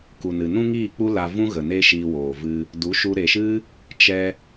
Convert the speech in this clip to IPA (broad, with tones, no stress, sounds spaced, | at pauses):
k u˨ n ɨ˨ n ũ˦ ŋ iː˦˨ k͡p u˦ l a˧ v ũ˦ ɣ ə˨ n e˦ ʃ iː˧ w oː˨ v ɨ˧ | d u˨˦ ʃ u˧ ɾ e˨ ʃ ɨ˦ | t͡ʃ ɛ˧